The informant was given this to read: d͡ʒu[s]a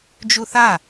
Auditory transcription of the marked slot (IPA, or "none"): θ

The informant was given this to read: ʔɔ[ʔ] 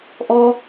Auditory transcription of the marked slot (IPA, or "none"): none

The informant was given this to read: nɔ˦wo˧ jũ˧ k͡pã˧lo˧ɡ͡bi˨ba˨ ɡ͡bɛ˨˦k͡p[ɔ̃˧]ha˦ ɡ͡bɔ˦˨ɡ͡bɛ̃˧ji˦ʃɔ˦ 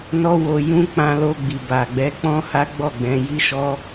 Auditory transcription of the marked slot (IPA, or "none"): ɔ̃˦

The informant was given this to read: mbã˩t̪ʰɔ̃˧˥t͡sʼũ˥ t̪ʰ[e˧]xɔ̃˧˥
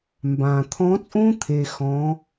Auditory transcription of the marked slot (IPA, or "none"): e˧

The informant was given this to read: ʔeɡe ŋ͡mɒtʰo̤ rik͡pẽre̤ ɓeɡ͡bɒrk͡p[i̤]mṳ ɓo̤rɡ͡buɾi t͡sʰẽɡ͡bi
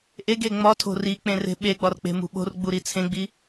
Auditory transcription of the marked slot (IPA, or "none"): e̤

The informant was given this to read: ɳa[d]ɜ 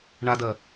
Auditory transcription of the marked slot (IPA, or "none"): d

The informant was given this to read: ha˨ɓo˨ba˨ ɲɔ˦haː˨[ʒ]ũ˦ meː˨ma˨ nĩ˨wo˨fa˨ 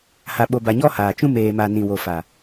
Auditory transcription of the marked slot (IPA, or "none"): t͡ʃ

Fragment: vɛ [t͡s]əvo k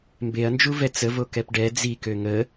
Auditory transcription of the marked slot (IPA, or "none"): t͡s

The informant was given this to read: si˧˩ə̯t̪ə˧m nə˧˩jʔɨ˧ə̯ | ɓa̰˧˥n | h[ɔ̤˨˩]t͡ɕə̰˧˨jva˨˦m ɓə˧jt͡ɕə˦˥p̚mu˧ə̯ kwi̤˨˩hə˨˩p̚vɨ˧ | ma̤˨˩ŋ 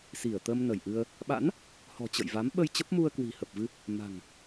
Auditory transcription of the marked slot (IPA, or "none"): ɔ̤˨˩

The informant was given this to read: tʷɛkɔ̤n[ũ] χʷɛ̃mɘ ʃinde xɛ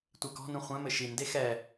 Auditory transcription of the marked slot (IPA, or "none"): ũ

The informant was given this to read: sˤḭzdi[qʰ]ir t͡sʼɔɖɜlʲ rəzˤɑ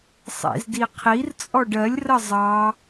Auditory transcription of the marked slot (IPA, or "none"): qʰ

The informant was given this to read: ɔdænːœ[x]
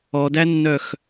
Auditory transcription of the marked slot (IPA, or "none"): x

